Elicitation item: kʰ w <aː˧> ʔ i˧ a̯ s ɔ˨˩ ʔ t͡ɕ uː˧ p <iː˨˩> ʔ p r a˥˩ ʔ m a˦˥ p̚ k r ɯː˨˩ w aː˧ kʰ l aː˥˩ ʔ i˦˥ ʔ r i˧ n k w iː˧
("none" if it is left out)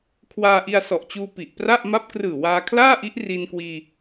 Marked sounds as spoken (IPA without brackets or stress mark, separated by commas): aː˧, i˨˩